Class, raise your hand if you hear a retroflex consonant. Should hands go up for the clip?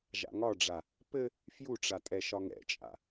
yes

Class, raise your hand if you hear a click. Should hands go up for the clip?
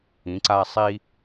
yes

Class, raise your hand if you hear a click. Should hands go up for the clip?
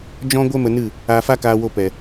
no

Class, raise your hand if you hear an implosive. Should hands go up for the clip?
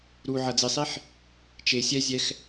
no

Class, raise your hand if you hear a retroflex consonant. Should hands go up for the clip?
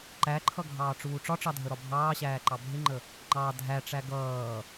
yes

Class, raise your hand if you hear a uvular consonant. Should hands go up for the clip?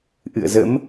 no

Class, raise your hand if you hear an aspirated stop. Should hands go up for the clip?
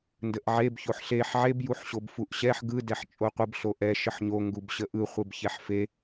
no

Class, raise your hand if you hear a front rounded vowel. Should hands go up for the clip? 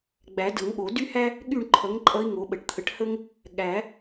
yes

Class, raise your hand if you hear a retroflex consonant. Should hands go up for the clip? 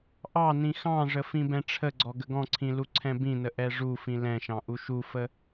yes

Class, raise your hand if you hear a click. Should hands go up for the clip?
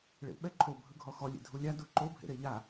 yes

